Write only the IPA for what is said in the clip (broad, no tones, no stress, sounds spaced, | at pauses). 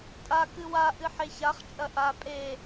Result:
tʼ a k ɨ w a ʔ ɨ ħ e ç a χ t͡ʃʼ ɐ ʔ a pʼ e